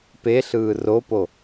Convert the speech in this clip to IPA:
p e ɬ ɯː r o p o

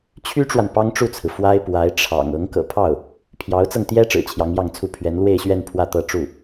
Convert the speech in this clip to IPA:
t͡ɕʰ y˥ ʈ͡ʂ w a˨ n p ɑ˥ ŋ ʈ͡ʂ u˥˩ t͡sʰ ɹ̩˩ f w a˥ ɪ̯ p w a˧˥ ɪ̯ ʈ͡ʂʰ ɑ̰˨˩ ŋ ɤ˧˥ ŋ k ɤ̰˨˩ pʰ ɑ˥˩ ʊ̯ | pʰ j ɑ˧˥ ʊ̯ t͡s ɤ˧ ŋ t̪ j ɛ˥ ʈ͡ʂ ɻ̩˨˩ t͡ɕʰ j ɑ˧˥ ŋ j ɑ˥˧ ŋ t͡sʰ u˥˩ pʰ ɥ ɛ˧˥ n l w e˥˧ ɪ̯ ɕ ɥ ɛ˥˧ n pʰ w ä˥˧ t̪ ɤ˥˧ ʈ͡ʂ u˥˩

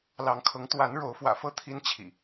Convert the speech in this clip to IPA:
l ɑ˨˦ ŋ kʰ ɤ˨˦ ŋ t̪ w a˨˦ n ɻ o˨˦ ʊ̯ f w ä̰˨˩ f ɤ˥˨ t̪ʰ i˦ n t͡ɕʰ ḭ˨˩

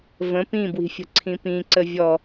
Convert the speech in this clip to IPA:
v ə̃ p ĩ b w i̤ fʲ ə̤ ǀʰ ĩ p ĩ ǀ ə vʲ ɔ

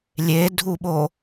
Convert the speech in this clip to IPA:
lʲ e dʱ u ɓ o

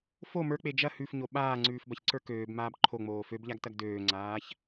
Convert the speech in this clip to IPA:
f o m ə˞ k͡p e d͡ʒ ɐ h ʉ f ɲ o ɓ aː ŋ͡ǀ ʉː f b ɐ ç ǀ ə˞ k øː b m aː b ǃʰ o ŋ͡m oː f ø b ʎ a ɡ t ɐ ɡ d øː ŋ͡ǀ aː ç

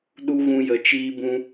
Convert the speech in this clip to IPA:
ɗ u˦ ɣ ũ˧ j ə˨ t͡ʃ iː˦ b ũ˦

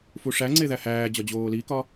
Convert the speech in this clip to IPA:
f u ʂ æ ŋ͡ǀ e ð æ h æː d͡ʑ ɒ d͡ʑ oː l i k ɒ

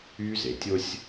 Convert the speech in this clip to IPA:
yː˦ z e˨ tʲ o˦ sʲ

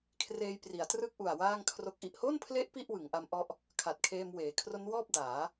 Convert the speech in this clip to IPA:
kʰ r eː˧ j p r i˩˦ a̯ t r ɯ˥˩ k̚ ʔ u˨˩ a̯ w aː˥˩ ŋ kʰ r o˦˥ k̚ ʔ i˨˩ ʔ h o˥˩ n pʰ l e˦˥ ʔ p i˥˩ ʔ w ɯ˩˦ ŋ ʔ a˦˥ m ʔ ɔ˦˥ ʔ | kʰ a˨˩ t̚ kʰ eː˧ m w eː˩˦ kʰ r o˦˥ n w ɔː˥˩ p̚ d aː˩˦

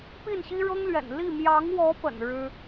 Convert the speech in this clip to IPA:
p i˥˩ n ɕ i˥ ɻ ɤ˥ ŋ l ɥ ɛ̰˨˩ n l i˥˩ m j ɑ˧˥ ŋ w ɔ˧˥ p ə̰˨˩ n ɻ ɻ̩˥

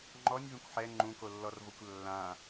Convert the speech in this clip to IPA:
ŋ͡ǃ ɔ nʲ v ẽ kʷ ħ ɛ ŋ͡ǃ ũ k o lː ɔ r v o kʷ lː ã

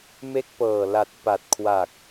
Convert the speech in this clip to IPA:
m e˦˥ k̚ p ɤː˨˩ l a˨˩ t̚ p a˨˩ t̚ kʰ w aː˨˩ k̚

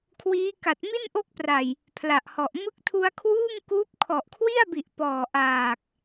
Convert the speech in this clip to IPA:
kʰ w iː˦˥ k a˨˩ t̚ m i˥˩ n ʔ o˦˥ k̚ p r a˨˩ j | pʰ l a˨˩ ʔ h ɔ˨˩ ʔ m ɯ˦˥ k̚ tʰ u˧ a̯ kʰ w uː˥˩ ŋ k uː˦˥ p̚ kʰ ɔ˨˩ ʔ kʰ w i˥˩ a̯ b i˨˩ ʔ p ɔː˨˩ ʔ aː˨˩ k̚

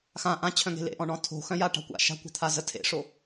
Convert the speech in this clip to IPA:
x ã ʔ ã t͡ɕʰ œ̃ ŋ e̤ l ḛ ʔ ɔ̃ ɳ ɔ̃ tʰ o̤ x œ̃ j a ʈ a̤ kʷ a̰ ʃ a̤ kʷ a̤ t̪ʰ a z ə tʰ ḛ ʂ o

